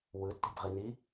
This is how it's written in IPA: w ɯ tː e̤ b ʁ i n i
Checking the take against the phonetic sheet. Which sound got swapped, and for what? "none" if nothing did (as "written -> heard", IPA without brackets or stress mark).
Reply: none